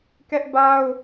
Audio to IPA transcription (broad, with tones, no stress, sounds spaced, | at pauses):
k ɛ˦ ʔ b a˦ ʊ̯